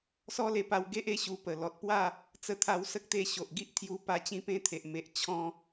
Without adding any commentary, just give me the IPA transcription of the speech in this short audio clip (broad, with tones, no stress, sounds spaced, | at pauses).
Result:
s ɔ˦ l e˧ p a˧ w ɡ e˦ ʔ e˥˧ ɕ u˧ p ə˨˩ l ɔ˨ t̚ p w a˥˧ | t͡s ə˧ t̪ʰ a˧ w s ə˦ k̚ t̪ e˧ ɕ o˨ ʔ ɡ i˦ ʔ t̪ʰ j u˧ p a˧ t͡ɕ ĩ˧ p ẽ˧ t̪ʰ e˨ ʔ m e˨ ʔ t͡ɕʰ ɔ̃˧